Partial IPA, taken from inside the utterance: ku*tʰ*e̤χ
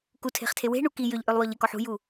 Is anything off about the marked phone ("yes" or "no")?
no